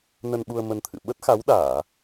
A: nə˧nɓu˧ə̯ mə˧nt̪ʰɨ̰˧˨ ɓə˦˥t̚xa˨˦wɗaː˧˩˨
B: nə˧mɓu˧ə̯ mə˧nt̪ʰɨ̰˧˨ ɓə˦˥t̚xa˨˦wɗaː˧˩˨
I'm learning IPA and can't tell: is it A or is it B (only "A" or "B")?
A